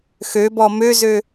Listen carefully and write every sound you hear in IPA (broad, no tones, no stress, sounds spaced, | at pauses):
x ø b ɔ m ø z ø